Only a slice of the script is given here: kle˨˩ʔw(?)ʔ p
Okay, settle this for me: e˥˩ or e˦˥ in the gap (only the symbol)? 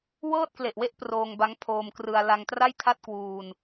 e˦˥